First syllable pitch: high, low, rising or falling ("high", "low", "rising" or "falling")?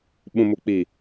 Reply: low